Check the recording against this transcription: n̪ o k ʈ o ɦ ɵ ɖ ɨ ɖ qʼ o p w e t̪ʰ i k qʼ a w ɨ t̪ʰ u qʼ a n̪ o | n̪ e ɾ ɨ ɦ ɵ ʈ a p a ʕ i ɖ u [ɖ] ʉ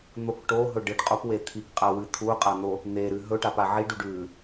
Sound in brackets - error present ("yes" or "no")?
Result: no